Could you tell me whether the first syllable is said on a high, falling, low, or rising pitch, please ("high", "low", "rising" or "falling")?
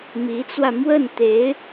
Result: rising